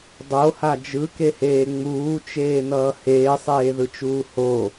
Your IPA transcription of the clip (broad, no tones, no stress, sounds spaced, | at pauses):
dˤ o h a d͡ʒ ɯ k e h eː ŋ͡m uː t͡ʃ eː n ʌː h eː sˤ eː ð ɯ t͡ʃ uː h o